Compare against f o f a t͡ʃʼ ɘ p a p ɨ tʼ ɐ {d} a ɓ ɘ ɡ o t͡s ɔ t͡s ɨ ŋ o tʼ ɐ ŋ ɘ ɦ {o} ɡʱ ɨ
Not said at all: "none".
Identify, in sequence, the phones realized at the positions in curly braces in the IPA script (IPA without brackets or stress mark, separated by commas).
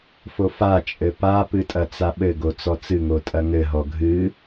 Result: t͡s, ɔ